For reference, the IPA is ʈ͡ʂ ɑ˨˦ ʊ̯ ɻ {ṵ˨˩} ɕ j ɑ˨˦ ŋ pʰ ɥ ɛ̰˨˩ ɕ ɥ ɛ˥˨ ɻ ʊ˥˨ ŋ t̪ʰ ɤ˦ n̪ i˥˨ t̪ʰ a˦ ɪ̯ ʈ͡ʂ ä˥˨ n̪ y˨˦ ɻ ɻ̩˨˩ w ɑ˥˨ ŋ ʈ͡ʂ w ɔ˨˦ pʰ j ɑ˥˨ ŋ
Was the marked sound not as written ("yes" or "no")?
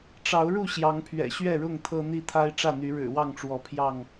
yes